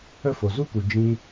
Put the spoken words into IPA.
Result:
ə˦˨ f o˨ z u˦ k u˨ d͡ʒ ĩ˧

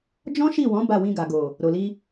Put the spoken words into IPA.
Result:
d͡ʒ ɔ̃˦ ʃ i˦˨ w ɔ̃˨˦ b a˦˨ w ĩ˧ ɡ a˨ ɡ o˨ | ɾ o˨ l i˧

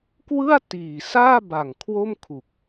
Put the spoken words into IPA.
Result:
k w ɯ˥˩ a̯ t iː˨˩ s aː˥˩ b a˨˩ ŋ kʰ w o˥˩ m kʰ u˨˩ k̚

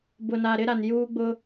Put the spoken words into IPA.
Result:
b ʊ˨ n a˨ ɾ ɪ˦ ɾ a˨ n j uː˦ ɡ͡b ʊ˦

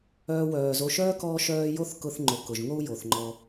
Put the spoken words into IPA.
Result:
œː˦ w œː˨ z o˦ ʃ œː˥ k ɔː˦ ʃ œː˦ j o˥ θ k ʊ˦ θ ŋ͡ǃ o˨ k ʊ˩ ʒ ŋ o˥ u̯ j o˩ θ ŋ͡ǃ ɔ˨

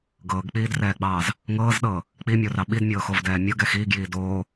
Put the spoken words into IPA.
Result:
ɡ ɤː ɡ k͡p iː d r ɛː ɡ͡b ɑː z | ŋ ɤː z ɗ ɤː | k͡p i mʲ o r ɑ ɓ i d mʲ ɤː x o v d ɛː mʲ ɤ ɡ ɛ x iː ɡ j iː d oː

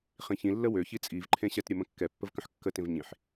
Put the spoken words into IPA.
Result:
χ ĩ ç ĩ lː ə w ø ç i t͡sʼ i v ǃʰ ẽ ɕ ɛ t ɾʲ ə m ə̃ kː ɛ pː ə v k ə̃ ħ kː ə t ẽ v ɲ ĩ ħ

